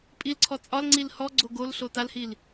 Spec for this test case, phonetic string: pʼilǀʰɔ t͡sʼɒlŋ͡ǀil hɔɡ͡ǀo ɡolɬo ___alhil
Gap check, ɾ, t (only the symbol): t